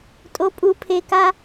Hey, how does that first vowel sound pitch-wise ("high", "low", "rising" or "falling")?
rising